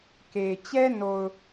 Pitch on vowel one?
low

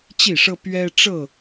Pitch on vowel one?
falling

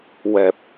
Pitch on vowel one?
low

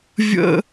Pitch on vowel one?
high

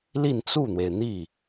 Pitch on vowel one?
falling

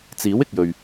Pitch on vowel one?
rising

